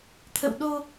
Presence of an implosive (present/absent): present